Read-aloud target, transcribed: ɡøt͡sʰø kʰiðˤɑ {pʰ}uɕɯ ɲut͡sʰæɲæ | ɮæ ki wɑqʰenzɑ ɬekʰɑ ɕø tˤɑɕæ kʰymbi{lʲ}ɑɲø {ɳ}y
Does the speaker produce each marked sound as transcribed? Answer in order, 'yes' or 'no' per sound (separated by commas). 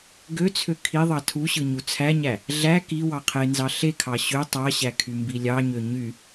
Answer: no, yes, no